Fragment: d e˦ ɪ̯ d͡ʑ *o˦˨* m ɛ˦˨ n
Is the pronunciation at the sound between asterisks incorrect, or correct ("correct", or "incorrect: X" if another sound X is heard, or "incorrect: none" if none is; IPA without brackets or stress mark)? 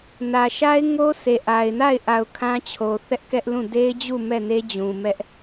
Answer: incorrect: u˦˨